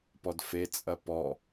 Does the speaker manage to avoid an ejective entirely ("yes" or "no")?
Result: no